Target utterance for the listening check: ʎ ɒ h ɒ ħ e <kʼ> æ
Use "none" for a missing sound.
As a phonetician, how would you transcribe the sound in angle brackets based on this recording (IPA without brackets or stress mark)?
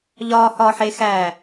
x